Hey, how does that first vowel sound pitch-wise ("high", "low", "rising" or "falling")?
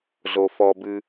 low